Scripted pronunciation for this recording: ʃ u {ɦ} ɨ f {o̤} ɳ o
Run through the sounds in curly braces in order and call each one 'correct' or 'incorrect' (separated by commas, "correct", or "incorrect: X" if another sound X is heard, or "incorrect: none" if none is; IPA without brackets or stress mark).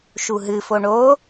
correct, incorrect: o